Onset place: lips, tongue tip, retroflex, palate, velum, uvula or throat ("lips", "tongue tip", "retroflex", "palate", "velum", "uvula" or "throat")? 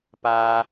lips